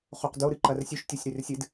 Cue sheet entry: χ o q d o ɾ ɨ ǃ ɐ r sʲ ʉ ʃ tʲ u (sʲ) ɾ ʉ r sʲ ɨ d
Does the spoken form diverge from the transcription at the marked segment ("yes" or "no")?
no